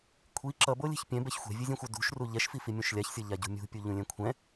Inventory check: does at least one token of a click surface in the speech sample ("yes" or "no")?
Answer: yes